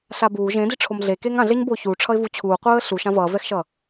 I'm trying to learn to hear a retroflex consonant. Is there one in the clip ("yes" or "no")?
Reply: yes